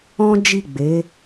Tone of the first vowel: high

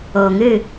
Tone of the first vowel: low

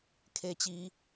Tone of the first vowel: falling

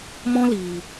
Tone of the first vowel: high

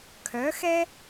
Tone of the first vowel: rising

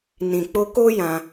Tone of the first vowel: low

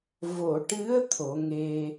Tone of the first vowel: low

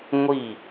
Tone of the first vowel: falling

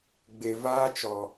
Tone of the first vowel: low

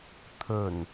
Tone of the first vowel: low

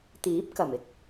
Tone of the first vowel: rising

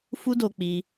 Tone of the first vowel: high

